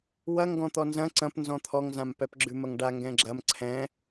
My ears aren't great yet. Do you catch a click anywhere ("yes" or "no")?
yes